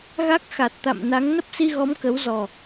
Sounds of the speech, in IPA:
ɣ a˦˥ k̚ x a˨˩ t̚ t̪ a̰˧˨ m n a˨˦ ŋ n ə˦˥ p̚ s i˧ ɣ ɔ˨˦ m k ə˨˦ w z ɔ˨˩

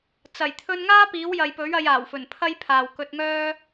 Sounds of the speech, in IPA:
t͡s ɐ˨˩ j t̪ʰ ɵ˧ n ŋ aː˥ p iː˨˥ w j ɐ˨ j p ɵ˨˥ ɥ ɐ˨˧ j aː˨˩ w f ɵ˨˩ n pʰ ɐ˥ j pʰ aː˨ w k ɵ˧ t̚ ŋ œː˥

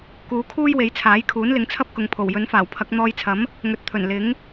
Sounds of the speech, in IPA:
k uː˨˧ kʰ uː˥ j w e˨˥ j t͡sʰ aː˨˥ j kʰ uː˨˥ n l ɪ˨˥ ŋ t͡sʰ ɐ˥ p̚ k ʊ˨ ŋ pʰ o˨˩ w j ɵ˨˥ n f aː˨˩ w pʰ ɐ˨˥ k̚ n̪ ɔː˧ j t͡sʰ ɐ˨˥ m | ŋ ɵ˨ t̚ t̪ʰ ɵ˨˩ n l ɪ˨˥ ŋ

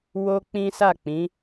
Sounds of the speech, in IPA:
w o˦ k͡p ĩ˦ s a˦˨ k͡p ĩ˨˦

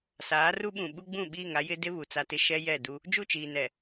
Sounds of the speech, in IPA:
s aː˨˦ r u˦ ɓ ũ˨ ɓ u˦ ɡ͡b ũ˦˨ ɓ iː˦˨ ŋ a˦ j ɪ˦ d ɪ˦ β u˨ t͡s a˦ t ɪ˦ ʃ ɛ˦ j ɛ˦˨ d u˦ | d͡ʒ u˦˨ t͡ʃ iː˨ n ɛ˨

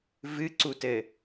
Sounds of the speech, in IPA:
v ɨ ǀ u t ɘ

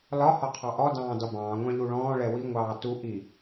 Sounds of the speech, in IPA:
l ɒ h ɒ qʰ ɑ ʔ ɔ d ɑ̃ː d ɒ b ɑ̃ː ŋʷ ɑ̃ ʎ u ɭ ɔ̃ː ɭ ɛ w i ŋʷ ɑː t u ʔ i

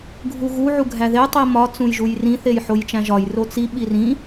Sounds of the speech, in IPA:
ɡʱ u ɣ u ʕ u ɡʱ æ ð e tˤ i m ɒ t͡s ũ j ʒ u j r ĩ θ e j ħ o j t͡ʃ æ̃ ʒ ɒ j r o t͡s i ɓ i r ĩ

